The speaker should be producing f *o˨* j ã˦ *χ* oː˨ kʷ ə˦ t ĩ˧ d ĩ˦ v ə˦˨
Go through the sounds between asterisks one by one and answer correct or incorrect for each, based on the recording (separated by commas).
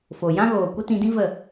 correct, incorrect